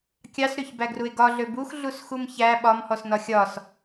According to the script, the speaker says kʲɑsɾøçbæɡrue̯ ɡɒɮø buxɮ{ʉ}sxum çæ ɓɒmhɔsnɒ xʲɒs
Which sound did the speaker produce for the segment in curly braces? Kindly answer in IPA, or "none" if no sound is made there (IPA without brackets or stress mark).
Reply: u